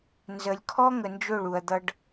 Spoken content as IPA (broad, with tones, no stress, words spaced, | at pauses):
nzə˨lʲkʰɔ˦ ŋə˨nd͡ʒɵ˦˨ɭ u˨ɐ̯d̪ʌ˧ɖ